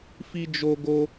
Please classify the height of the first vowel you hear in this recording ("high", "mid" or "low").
high